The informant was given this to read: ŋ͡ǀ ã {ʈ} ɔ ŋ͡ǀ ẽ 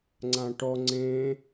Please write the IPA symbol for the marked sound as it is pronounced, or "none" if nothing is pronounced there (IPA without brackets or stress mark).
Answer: ʈ